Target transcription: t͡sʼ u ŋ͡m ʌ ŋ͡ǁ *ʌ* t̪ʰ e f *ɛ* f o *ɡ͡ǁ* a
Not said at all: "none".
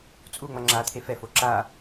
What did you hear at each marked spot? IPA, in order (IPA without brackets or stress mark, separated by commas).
a, ɛ, ǁ